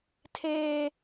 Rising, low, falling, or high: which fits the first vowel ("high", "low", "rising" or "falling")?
high